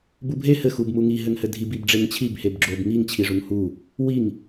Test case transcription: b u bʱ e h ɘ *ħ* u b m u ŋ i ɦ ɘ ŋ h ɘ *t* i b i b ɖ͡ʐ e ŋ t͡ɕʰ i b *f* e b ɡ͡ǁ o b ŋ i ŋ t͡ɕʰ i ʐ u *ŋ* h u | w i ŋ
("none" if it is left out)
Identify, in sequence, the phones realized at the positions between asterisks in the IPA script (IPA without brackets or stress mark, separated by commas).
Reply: x, dʱ, h, ŋ